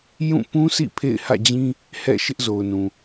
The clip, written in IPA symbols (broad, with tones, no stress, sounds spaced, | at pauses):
j ũ˦˨ p ũ˦ sʰ ḭ˦˨ pʰ ḛ˦˨ ɪ̯ h ä̰˦˨ d͡ʑ ĩ˦ | h ɛ̰˦˨ ʃ ɪ˦ ʔ z o˨ ʊ̯ n ũ˨